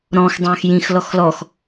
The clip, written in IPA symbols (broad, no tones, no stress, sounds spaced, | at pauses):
ɾ ɔ̃ x dˤ œ̃ː x j ĩ x l ɔ x l ɔ x